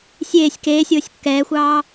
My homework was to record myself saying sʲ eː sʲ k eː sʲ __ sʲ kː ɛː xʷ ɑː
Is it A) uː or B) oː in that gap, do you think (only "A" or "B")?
B